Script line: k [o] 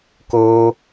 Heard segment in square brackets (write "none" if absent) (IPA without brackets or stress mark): o